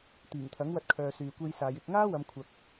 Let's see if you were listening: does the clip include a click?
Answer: no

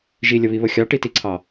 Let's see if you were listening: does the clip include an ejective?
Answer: no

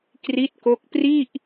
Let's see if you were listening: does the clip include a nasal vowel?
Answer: no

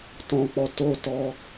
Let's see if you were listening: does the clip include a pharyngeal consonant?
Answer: no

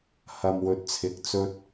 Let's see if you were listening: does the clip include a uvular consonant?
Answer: no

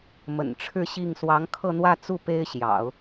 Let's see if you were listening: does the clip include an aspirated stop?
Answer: yes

